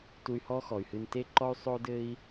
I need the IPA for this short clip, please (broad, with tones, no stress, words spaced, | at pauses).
tu˧y̯hɔ˥xɔ˩y̯hɨ˧n te˥ǃɔ˥y̯ sˤo˥dɘ˥i̯